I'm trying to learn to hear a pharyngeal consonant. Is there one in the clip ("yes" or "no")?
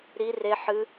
yes